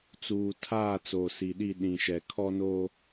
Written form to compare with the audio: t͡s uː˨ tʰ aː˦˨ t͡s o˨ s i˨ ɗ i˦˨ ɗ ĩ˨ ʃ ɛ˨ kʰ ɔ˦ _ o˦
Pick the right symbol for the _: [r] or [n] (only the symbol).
n